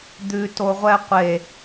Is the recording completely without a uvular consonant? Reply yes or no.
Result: no